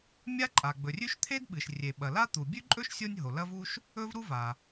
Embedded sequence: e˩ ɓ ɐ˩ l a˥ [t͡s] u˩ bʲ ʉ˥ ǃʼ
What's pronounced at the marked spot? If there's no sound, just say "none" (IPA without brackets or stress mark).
t̪